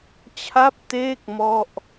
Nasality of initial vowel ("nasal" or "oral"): oral